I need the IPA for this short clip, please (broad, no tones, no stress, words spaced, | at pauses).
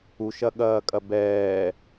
uʃɐɠɐːkʼɐ bɛː